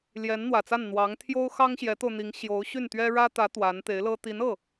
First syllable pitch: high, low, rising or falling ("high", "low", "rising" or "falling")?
rising